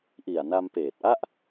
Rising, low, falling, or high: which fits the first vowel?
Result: low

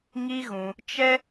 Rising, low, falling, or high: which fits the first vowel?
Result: high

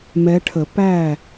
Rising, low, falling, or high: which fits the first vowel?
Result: rising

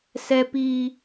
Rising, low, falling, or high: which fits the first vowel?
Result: high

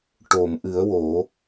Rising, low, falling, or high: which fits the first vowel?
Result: low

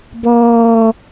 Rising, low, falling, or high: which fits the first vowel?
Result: low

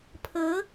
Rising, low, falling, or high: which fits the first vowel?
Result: rising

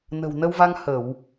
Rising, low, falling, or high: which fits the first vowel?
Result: low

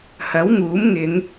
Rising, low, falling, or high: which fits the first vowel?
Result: rising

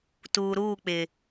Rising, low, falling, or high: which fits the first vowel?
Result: low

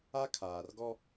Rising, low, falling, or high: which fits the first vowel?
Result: high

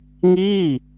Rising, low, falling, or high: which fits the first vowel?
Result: falling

